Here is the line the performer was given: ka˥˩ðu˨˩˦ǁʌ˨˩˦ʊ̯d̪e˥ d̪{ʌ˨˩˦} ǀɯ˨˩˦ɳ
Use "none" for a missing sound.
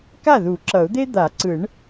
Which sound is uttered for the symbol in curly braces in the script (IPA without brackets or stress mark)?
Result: a˨˩˦